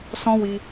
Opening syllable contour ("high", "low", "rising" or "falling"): high